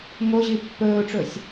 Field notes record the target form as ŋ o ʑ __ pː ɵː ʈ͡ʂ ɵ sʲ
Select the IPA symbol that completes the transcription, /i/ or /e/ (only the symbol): i